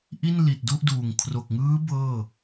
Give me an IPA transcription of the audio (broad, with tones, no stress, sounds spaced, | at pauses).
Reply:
ʔ i˥˩ n l i˨˩ t̚ d u˥˩ ʔ d uː˨˩ ŋ kʰ r o˨˩ k̚ ŋ ɯː˦˥ b ɤː˥˩